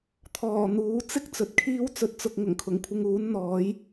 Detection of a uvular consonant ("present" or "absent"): absent